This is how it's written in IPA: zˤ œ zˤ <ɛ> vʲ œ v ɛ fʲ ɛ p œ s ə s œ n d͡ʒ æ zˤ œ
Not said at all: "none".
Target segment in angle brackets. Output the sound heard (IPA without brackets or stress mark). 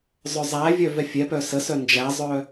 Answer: æ